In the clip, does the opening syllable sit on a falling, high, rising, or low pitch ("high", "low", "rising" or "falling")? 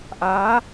rising